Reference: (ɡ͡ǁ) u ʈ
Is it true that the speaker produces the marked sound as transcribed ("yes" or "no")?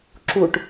no